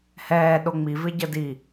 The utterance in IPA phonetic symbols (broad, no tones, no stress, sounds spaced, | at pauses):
h ɛː ɗ o ŋ͡m i v ɪ ɟ ə d i